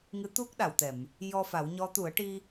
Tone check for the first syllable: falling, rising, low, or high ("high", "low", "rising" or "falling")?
rising